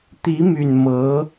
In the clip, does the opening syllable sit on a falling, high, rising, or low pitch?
rising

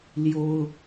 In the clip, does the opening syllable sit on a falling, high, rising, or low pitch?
high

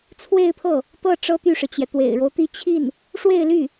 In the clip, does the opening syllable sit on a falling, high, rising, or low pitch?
falling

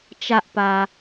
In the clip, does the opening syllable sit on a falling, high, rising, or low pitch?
low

